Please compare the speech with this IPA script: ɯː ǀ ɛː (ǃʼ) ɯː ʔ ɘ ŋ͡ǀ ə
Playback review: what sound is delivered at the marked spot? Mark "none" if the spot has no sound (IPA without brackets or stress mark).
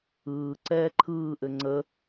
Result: ǃʰ